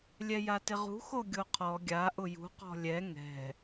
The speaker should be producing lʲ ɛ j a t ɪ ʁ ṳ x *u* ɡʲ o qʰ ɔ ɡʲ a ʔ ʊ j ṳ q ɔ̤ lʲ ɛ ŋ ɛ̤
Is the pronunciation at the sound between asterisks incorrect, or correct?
incorrect: o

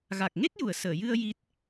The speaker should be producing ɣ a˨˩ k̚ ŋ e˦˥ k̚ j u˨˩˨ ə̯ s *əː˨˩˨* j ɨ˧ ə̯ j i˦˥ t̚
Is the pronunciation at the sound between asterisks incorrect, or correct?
correct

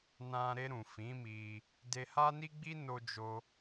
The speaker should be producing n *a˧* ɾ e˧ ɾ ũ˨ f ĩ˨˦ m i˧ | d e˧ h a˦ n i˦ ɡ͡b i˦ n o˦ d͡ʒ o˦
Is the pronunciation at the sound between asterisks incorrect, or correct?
incorrect: ã˧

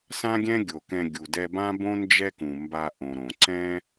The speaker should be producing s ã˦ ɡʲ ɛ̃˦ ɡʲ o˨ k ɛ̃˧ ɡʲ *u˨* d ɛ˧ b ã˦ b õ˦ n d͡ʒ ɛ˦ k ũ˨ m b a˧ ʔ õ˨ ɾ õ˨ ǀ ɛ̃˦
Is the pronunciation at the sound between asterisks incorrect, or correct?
correct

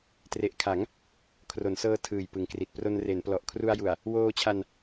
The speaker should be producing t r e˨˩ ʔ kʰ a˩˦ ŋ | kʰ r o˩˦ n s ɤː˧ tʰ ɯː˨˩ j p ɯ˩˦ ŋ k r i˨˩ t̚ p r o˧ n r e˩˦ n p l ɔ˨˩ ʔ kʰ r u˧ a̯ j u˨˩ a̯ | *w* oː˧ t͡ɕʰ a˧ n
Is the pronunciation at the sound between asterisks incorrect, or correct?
correct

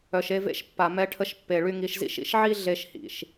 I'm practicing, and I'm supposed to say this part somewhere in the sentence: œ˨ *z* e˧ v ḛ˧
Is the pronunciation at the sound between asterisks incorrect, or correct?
incorrect: ʃ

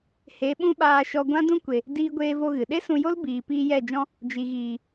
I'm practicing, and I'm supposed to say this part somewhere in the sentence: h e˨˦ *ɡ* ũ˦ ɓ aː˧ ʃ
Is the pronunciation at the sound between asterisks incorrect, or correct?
incorrect: ɓ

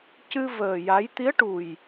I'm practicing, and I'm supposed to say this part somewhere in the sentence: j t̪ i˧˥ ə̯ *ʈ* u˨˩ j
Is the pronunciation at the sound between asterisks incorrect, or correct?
correct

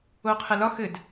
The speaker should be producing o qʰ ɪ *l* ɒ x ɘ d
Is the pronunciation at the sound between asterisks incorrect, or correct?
correct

